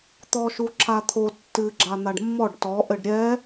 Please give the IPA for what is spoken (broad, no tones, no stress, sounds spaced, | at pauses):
t̪ ɔ ʃ u ǁʰ a t̪ʰ o tː ɨ ɡ͡ǁ a n̪ a ɖ mː ɔ ɖ t ɔ ʔ ɘ ɖ ɾʲ ɛ